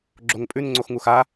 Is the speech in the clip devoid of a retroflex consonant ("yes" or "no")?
yes